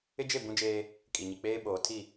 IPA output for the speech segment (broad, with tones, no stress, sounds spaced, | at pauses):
ɪ˦ d͡ʒ e˦˨ b ũ˦ d͡ʒ eː˦ | kʼ i˨ ɲ i˨ k͡p eː˦ ɓ oː˨ tʰ i˦˨